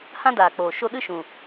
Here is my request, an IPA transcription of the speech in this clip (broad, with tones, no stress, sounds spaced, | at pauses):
h ã˦ d aː˨ k͡p oː˨ ʃ o˧ ɗ ɨ˦ ʃ ũ˨